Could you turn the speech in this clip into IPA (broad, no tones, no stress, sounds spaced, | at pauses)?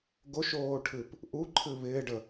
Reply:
ɡ o ʃ oː ʈʰ ɨ p | ʔ u ǃʰ ɨ β ɪː ɖ ə